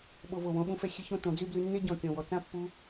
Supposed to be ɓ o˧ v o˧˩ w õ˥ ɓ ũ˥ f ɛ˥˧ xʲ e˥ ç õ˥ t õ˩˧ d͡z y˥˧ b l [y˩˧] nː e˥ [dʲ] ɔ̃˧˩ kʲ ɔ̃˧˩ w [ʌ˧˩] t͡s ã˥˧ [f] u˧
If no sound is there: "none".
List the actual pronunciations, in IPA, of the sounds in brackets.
y˧, ɟ, ɔ˧˩, pː

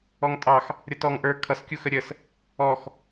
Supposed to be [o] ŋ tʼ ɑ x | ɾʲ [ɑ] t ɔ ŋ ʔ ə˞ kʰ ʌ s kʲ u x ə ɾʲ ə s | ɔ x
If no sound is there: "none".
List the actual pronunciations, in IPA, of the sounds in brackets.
ɔ, ʌ

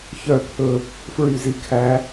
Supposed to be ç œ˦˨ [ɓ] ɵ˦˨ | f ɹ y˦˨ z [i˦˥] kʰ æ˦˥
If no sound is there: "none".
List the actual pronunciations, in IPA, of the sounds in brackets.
pʰ, i˦˥

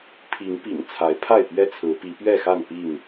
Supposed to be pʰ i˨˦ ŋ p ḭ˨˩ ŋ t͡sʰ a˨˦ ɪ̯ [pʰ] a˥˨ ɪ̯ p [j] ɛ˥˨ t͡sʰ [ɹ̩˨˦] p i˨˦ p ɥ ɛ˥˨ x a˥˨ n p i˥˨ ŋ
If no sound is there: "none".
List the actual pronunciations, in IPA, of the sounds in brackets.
pʰ, ɥ, ɹ̩˨˦

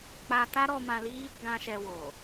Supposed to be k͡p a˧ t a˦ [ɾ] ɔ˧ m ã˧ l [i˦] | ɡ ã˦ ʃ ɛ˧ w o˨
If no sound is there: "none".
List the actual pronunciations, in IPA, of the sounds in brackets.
ɾ, i˦

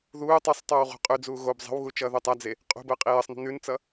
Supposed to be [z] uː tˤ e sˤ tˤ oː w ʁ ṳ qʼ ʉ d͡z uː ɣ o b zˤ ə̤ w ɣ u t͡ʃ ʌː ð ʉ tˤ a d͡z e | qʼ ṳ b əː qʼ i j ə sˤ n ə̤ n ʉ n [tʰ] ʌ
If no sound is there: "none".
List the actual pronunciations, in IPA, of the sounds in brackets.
ð, t͡s

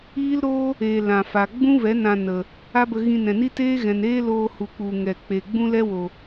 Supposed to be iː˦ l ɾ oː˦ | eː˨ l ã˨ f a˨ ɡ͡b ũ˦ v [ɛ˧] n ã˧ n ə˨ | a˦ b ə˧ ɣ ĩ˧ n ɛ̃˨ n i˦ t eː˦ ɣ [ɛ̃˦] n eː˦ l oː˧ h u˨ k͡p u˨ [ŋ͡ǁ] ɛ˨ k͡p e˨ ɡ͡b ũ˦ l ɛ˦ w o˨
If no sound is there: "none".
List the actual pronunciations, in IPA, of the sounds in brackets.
ɛ˨˦, ɛ̃˨, ŋ

